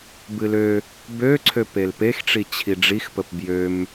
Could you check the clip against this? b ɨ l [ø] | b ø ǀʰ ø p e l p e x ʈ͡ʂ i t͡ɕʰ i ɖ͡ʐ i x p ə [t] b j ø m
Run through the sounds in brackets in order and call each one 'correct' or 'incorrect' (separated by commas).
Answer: correct, incorrect